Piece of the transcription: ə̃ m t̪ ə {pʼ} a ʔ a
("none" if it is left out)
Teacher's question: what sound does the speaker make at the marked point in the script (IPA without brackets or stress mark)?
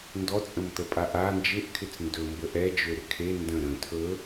pʼ